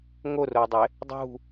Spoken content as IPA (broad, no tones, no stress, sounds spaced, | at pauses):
ŋ o r o dˤ e | dˤ ṳ